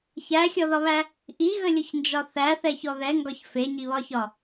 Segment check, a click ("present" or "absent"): absent